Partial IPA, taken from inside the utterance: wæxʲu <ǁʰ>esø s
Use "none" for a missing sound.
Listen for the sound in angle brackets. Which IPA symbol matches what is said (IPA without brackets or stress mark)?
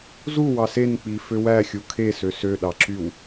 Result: kʰ